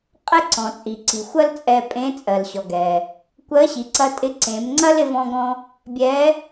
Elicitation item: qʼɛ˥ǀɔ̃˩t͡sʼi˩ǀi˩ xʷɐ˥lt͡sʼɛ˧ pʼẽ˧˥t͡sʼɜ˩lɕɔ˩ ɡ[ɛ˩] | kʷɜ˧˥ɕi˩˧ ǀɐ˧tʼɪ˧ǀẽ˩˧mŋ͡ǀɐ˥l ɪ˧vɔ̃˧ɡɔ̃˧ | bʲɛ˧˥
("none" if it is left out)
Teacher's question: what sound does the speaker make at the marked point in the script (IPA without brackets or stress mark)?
ɛ˩